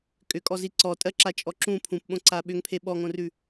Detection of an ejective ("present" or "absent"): present